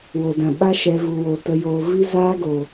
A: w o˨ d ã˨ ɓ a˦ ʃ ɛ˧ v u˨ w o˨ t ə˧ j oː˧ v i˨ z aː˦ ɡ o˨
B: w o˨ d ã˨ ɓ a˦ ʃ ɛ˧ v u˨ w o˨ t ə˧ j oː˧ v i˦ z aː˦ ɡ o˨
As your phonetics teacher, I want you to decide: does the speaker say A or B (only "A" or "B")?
B